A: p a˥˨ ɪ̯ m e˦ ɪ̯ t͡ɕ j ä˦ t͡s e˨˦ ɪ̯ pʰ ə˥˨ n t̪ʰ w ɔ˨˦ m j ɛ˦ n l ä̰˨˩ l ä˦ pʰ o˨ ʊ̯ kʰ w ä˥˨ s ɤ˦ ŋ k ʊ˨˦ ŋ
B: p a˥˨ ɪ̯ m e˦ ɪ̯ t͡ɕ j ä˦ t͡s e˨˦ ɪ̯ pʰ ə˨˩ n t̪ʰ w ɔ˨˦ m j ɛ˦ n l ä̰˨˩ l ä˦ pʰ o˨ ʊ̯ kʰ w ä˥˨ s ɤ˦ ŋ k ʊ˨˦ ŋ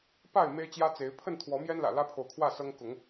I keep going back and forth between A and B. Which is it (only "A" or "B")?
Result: A